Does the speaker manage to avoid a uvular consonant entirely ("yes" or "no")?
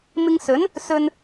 yes